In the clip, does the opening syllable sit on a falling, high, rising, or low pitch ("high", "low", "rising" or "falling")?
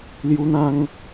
high